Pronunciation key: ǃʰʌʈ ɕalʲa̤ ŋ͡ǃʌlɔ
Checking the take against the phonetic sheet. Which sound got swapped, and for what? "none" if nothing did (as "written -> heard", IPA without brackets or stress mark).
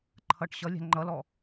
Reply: a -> ʌ